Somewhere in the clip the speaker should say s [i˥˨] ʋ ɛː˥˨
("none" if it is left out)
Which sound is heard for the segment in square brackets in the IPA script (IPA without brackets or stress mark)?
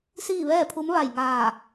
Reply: iː˥˨